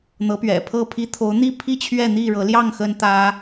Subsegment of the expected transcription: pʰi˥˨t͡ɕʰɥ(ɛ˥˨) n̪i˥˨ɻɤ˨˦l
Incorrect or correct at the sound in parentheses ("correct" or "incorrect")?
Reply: correct